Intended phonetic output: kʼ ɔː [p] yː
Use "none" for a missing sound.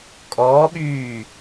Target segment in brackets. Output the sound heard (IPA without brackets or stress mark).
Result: ɓ